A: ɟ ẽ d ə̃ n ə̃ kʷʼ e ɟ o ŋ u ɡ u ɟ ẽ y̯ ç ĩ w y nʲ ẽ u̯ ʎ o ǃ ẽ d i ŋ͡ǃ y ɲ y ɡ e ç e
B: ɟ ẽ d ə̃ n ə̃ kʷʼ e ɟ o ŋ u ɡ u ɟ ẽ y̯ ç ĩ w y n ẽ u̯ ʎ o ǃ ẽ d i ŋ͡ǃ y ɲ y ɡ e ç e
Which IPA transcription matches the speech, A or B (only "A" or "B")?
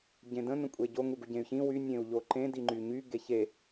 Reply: A